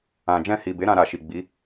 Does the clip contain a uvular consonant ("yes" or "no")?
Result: no